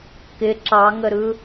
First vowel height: high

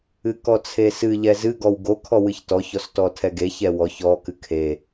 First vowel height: high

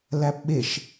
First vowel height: low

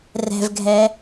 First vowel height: mid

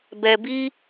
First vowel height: mid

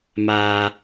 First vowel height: low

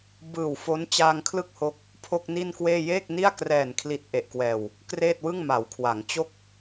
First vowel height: high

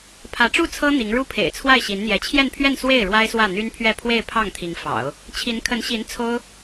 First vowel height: low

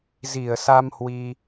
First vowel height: high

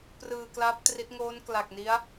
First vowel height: high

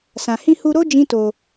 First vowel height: low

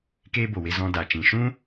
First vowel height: mid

